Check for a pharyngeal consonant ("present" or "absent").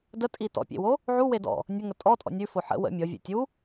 present